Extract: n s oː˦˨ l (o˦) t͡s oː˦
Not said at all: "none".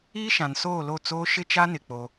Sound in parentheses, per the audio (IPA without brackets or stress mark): o˦˨